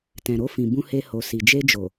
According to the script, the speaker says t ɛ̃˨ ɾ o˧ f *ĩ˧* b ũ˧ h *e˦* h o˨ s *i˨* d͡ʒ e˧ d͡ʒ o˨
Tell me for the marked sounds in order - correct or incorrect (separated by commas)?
incorrect, incorrect, correct